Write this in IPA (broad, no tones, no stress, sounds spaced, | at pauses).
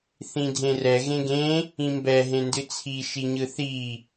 θ ĩ dʱ ẽ r ɛ ɣ ẽ ɡ ẽ | ĩ m b ɛ ɦ ẽ n d ɨ t͡sʰ i ʃ i ɲ ɯ θ i